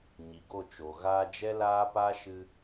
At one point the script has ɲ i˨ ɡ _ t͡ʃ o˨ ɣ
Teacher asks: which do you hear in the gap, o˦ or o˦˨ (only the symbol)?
o˦˨